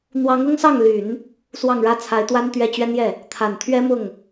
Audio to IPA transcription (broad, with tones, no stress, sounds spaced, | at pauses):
n̪ w ɑ˧˥ ŋ ʊ˥ ŋ s ɑ˥˩ ŋ l y˨˩˦ n | s w ɑ˥˩ ŋ ɻ ä˥ t͡sʰ a˧˥ ɪ̯ t̪ w a˥ n t̪ ɥ ɛ˥˩ t͡ɕ ɥ ɛ˥ n j ɛ˥˩ | t̪ʰ a˨˩ n t̪ʰ ɥ ɛ˥ m ʊ˥˩ ŋ